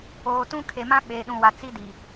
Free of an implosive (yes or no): no